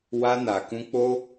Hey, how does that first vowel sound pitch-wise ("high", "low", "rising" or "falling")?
high